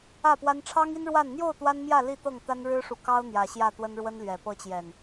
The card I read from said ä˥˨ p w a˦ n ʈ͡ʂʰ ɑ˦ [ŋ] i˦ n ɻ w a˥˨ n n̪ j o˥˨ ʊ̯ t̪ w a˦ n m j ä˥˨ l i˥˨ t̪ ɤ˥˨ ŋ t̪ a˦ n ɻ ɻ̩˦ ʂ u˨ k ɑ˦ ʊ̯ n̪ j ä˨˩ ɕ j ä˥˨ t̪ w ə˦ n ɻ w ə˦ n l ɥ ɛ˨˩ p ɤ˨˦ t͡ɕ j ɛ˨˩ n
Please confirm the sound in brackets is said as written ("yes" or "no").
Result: yes